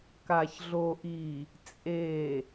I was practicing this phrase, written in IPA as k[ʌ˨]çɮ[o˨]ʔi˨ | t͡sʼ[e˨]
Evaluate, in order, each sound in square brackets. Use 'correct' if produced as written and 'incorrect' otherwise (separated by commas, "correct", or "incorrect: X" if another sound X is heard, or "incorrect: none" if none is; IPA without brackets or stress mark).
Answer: incorrect: a˨, correct, correct